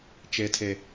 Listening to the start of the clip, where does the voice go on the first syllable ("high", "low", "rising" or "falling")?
low